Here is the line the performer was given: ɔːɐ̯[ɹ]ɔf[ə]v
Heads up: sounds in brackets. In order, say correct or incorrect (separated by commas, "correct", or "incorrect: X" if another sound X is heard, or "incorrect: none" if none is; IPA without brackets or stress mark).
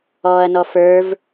incorrect: n, incorrect: ə˞